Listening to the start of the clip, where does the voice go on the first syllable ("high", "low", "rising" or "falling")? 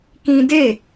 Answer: high